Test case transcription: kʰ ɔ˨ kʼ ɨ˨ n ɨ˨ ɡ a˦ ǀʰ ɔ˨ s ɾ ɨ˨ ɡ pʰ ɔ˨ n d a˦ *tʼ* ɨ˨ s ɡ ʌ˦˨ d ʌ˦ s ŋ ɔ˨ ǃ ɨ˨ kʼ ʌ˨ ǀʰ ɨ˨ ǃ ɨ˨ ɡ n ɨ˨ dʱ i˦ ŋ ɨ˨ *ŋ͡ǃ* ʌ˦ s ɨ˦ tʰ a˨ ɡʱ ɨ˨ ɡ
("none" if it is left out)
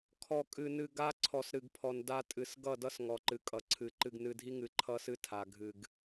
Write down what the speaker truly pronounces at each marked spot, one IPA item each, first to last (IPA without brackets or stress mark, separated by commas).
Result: tʼ, ǃʰ